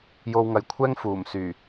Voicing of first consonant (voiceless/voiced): voiced